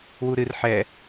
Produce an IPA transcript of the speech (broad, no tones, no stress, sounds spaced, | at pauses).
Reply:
w u ɾ ɨ r ħ ɛ